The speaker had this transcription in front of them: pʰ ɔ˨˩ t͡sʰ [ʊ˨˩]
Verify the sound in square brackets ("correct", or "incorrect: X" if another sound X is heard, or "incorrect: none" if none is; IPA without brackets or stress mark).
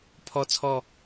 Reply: incorrect: ɔ˨˩